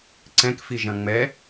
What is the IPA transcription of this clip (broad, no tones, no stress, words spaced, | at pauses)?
ǀɛ̃kfiʒɐ̃ ŋ͡mɛ